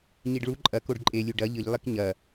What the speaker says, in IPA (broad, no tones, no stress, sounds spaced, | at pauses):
ɲ i ɖ ɭ u ǃʼ ɐ k o ɖ ǃʼ e lʲ u ɖ ɐ ʎ ɨ ʎ lˠ i k ɲ ɐ